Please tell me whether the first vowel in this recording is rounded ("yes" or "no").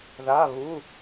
no